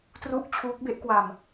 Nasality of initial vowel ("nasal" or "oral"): oral